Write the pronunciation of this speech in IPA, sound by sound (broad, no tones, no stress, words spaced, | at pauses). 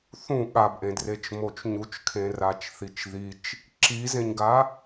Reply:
θũ ɠabʔẽdret͡ʃ mot͡ʃɲut͡ʃkʰẽ rat͡ʃθit͡ʃðit͡ʃ | ǁizẽɲɡa